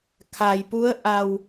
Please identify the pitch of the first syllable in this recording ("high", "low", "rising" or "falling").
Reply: low